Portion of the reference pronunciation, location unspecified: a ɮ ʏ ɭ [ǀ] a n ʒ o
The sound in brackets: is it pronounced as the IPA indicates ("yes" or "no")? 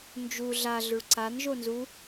yes